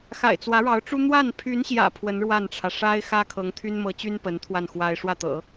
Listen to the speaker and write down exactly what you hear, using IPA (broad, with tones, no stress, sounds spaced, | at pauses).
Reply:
x a̰˨˩ ɪ̯ t͡s w ä˧˥ ɻ ɑ˧˥ ʊ̯ ʈ͡ʂ u˥ n̪ w a˥˩ n pʰ y˧˥ n ɕ j ä̰˨˩ pʰ w ə˧˥ n ɻ w a˥˩ n ʈ͡ʂʰ ä˩ ʂ a˥ ɪ̯ x ä˥ kʰ ɤ˧˥ ŋ t̪ʰ y˥ n m ɤ˧˥ t͡ɕ y˥ n p ə˧˥ n t̪ʰ w a˥˩ n x w a˥ ɪ̯ ʂ w ä˥˩ t̪ ɤ̰˨˩˦